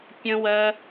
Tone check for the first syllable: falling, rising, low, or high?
high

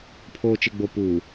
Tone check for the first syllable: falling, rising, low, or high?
low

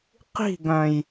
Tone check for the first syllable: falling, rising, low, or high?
falling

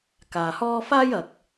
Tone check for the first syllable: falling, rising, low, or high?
low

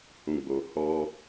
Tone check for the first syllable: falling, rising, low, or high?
low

